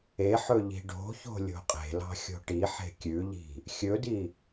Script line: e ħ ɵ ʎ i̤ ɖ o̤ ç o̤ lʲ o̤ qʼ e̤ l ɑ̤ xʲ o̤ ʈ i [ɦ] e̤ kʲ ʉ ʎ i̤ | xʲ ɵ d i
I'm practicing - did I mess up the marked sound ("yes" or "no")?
yes